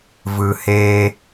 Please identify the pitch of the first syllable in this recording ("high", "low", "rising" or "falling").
low